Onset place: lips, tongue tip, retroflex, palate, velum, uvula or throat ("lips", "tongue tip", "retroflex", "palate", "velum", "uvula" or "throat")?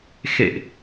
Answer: velum